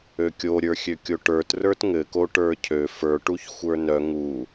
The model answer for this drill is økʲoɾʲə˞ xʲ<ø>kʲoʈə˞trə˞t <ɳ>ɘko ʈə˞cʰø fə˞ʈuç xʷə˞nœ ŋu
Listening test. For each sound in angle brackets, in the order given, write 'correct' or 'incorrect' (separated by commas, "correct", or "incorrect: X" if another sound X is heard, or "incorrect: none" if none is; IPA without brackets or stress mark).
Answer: correct, incorrect: ŋ